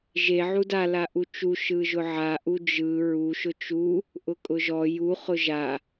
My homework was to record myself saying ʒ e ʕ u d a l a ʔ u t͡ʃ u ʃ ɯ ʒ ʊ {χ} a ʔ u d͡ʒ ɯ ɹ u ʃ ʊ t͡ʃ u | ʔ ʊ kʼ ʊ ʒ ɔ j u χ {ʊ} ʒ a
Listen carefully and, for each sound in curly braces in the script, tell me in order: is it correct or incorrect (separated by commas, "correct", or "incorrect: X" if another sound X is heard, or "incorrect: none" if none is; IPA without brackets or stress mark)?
incorrect: ʕ, correct